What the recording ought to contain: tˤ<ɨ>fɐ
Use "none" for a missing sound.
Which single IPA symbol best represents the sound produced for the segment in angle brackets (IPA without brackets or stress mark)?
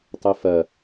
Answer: ɨ